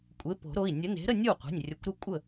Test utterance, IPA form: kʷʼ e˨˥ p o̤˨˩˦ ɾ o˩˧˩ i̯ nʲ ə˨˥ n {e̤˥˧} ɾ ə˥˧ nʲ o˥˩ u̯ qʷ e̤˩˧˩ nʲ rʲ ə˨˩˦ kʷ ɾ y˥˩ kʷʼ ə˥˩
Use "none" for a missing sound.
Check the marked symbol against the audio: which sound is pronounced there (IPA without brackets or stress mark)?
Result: e̤˨˥